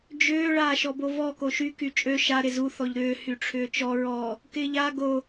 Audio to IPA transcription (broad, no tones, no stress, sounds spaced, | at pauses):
d͡ʒ ʏː ɭ aː ʃ ɔ b o v ɔ k o ʃ y k y t͡ʃʼ ø ʃ a ɾ ɪ z u θ ɔ ʎ ɾ ʏː h y ʈ͡ʂʰ ʏː t͡ʃ ɔ ɹ ɔ | k ɪː ʎ a ɡ o